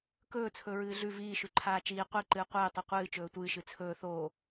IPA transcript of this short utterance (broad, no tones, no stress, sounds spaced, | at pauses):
k ɵː t͡sʰ ɵ ɹ ɨː ɮ ʉ v iː ʃ ʉ ǃʰ aː t͡ʃ iː qʷ i ǃ ɨː qʷ ɨː tˤ u qʷ ɨː t͡ʃ ɵː tʷ ɨː ʃ ɨ t͡sʰ ɵː θ oː